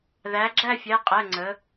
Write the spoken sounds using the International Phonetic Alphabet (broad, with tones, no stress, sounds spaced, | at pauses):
ð æ˩˧ ɡ͡ǁ æ˦˨ fʲ æ˩˧˩ qʼ ɛ˩˧˩ ŋ͡ǀ ə˩˧